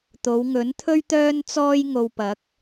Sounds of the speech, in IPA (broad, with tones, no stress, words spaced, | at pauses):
t̪o˨˧wŋɵ˨˥nt̪ʰɵ˥ɥ t̪œː˥nt͡sɔː˥j ŋo˧w pɐ˨˥k̚